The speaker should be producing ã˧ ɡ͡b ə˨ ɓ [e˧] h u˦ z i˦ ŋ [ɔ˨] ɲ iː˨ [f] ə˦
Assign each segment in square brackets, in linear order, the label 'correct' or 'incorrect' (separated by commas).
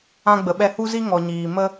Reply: incorrect, correct, incorrect